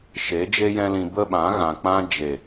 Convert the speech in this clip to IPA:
ʃ e˨˦ d͡ʒ e˦ j ɛ̃˦ l ĩ˧ b ə˦ ɓ ã˨˦ ɣ ã˨ k͡p ã˧ d͡ʒ e˨

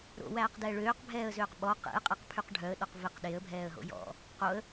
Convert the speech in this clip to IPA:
ɾ o̰ w æː q d ɛː ɭ øː q bʱ ɛː ə̯ z øː q ɓ ɔ q ḛ ə̯ qʼ e q pʰ y q ɖʱ œ ə̯ ɗ ɔ q v e q ɗ e ə̯ bʱ ɛː ə̯ ɦ o̰ j ɔ̰ | q o ə̯

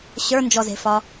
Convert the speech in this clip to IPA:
ɕ ə˞ n d͡ʒ ɔ z e̤ f ɒ

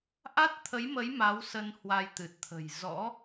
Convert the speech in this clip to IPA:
ʔ a˦˥ t̚ t̪ʰ ə˨˦ j m ə˨˦ j m a˨˦ w s ə˧ n h w a˧ j t̪ ɨ˨˩ t̚ t̪ʰ ə̤˨˩ j z ɔ̰˧˥

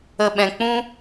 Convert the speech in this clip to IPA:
ə˨ ɓ ɛ̃˨ k͡p ũ˦

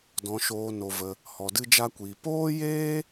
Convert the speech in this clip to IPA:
d ɔ̃˧ ʃ oː˧ n o˧ v ə˧ | h ɔ˧ d ɨ˦ d͡ʒ a˦ kʷ iː˧ p oː˦ j eː˦

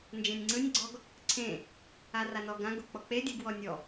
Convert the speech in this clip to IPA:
n d͡ʒ ẽ nʲ ŋ͡ǀ ɯ nʲ ɡ͡ǀ ɔ ɡ | ǀʰ ẽ | a r a n ɔ ɡ ã ɡ o k͡p ɔ k͡p e dʲ ɯ ɡ w ɔ nʲ ɔ

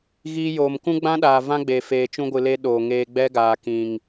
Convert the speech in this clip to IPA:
ɣ iː˧ j oː˨ m k ũ˦ ɡ͡b ã˦ ɗ aː˨ v ã˦ ɡ͡b e˨ f eː˨ t͡ʃ ũ˧ ɡʷ ɨ˨ l e˧ ɗ oː˨ ŋ eː˧ ɡ͡b ɛ˦ ɡ aː˨ k ĩ˨ ŋ

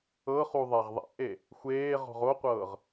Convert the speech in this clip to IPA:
ɤ χ u ðˤ a ʁ ðˤ ɛ̰ ʔ e | xʷ eː ʁ ɔ̤ ʁ o qʷ ɤː ʁ

